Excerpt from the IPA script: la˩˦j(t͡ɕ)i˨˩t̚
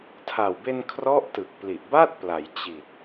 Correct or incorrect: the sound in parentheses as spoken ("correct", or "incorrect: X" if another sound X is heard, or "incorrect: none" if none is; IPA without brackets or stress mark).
correct